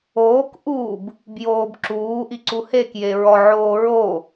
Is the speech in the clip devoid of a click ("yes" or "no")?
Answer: no